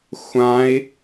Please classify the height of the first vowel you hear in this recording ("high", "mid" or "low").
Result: low